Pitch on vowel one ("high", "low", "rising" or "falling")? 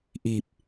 low